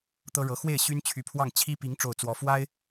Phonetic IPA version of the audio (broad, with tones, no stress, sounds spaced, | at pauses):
t̪ ɤ˥ ɻ ɤ˧˥ x w e˥˩ ɪ̯ ɕ y˥ n t͡ɕʰ y˧˥ pʰ w ɑ˥˩ ŋ t͡ɕʰ i˥ p i˧˥ ŋ ʈ͡ʂ o˥˩ ʊ̯ t͡s w ɔ˧˥ f w a˥ ɪ̯